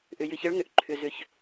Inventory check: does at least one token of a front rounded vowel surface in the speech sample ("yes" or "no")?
yes